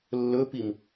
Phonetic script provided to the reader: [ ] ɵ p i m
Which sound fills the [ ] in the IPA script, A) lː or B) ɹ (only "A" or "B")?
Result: A